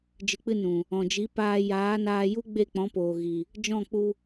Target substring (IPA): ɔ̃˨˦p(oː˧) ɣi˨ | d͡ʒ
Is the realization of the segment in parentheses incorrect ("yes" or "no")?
yes